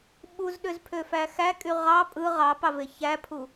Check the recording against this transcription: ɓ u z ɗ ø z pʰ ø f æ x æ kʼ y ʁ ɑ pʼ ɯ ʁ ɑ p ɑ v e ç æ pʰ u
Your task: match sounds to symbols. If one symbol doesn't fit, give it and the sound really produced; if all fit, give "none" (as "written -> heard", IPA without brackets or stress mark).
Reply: none